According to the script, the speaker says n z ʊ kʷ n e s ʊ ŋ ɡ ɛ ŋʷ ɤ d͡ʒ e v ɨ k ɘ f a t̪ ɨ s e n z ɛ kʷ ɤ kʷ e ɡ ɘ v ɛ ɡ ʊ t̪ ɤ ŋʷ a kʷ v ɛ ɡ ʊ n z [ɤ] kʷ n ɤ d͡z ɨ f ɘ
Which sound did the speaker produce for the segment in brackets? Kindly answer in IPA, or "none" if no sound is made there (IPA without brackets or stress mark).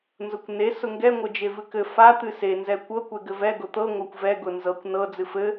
ɤ